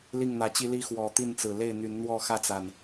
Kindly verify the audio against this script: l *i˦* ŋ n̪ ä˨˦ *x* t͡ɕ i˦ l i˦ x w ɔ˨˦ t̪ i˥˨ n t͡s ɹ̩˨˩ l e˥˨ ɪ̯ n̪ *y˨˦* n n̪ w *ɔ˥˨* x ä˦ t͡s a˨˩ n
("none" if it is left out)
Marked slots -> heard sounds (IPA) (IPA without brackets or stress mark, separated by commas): i˥˨, none, y˨˦, ɔ˥˨